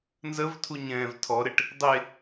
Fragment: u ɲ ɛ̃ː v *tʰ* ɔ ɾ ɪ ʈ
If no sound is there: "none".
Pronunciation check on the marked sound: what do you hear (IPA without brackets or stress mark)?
tʰ